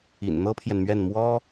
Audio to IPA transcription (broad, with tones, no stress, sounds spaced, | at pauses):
ḭ˨˩ n n̪ ɤ˥ pʰ j ɛ˨ n m ɥ ɛ˥˩ n m w ɔ˥